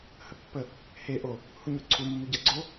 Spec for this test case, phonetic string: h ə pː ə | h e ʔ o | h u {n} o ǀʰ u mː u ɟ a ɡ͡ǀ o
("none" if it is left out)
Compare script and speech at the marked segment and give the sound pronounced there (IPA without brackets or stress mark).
ɲ